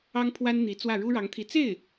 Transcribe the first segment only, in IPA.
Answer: ɑ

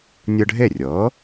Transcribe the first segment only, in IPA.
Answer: nʲ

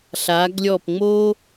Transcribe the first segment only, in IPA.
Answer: ɬ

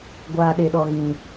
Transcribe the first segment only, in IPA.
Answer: ɡʷ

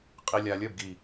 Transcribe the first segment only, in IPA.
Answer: qʼ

